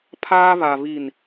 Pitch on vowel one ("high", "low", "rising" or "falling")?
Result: high